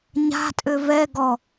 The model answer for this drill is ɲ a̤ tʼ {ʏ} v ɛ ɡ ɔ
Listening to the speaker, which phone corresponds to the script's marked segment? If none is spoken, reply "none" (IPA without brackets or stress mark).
ʏ